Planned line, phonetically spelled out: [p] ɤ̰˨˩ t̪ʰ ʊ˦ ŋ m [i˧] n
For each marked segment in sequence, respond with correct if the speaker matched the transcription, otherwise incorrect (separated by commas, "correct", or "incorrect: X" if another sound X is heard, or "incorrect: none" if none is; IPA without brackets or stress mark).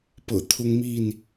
correct, incorrect: i˥˨